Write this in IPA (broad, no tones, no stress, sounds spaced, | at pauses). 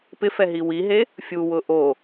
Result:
p ɪ f ɛ ɦ i w i ɦ e | fʲ u w ʊ ʔ o